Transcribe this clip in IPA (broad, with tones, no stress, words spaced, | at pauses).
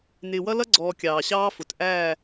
nɪː˨wʌ˦lʌ˦ɡ͡ǀɔː˨ kʲɑː˨ɕɑː˦fʊ˨t ʔæː˦˨